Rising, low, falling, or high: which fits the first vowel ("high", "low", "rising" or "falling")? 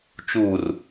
low